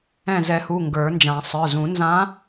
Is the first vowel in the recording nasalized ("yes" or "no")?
yes